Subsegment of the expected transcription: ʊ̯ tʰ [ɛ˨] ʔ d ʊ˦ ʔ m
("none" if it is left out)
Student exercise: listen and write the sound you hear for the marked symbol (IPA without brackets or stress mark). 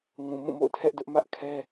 ɛ˦